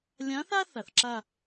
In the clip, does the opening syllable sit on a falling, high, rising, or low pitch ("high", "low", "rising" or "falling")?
rising